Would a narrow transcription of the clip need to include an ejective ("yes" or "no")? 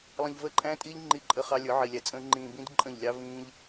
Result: yes